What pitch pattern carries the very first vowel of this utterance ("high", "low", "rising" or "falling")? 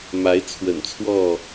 rising